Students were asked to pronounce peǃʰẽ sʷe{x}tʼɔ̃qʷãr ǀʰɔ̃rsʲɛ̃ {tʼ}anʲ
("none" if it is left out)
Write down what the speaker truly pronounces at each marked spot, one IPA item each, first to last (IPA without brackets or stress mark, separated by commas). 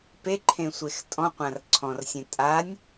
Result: x, tʼ